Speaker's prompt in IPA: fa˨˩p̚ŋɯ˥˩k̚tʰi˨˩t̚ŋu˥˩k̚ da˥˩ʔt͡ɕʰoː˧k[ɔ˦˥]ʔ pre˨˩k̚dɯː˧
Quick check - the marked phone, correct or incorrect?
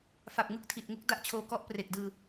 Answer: correct